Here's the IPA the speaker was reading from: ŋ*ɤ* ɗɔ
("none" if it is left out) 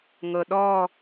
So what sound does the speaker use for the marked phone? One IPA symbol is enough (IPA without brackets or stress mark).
ɤ